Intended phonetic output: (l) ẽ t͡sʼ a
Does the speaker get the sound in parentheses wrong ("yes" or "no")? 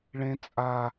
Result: yes